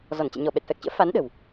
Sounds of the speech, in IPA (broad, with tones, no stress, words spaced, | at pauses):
zɔ˧˩nt͡ɕɛ̰˧˨ ɲɔ˧˩ɓɛ˨˩t̚fɛ˨˩k̚t͡ɕə̰ː˧˥ fa˨˦n ɗə̤˨˩w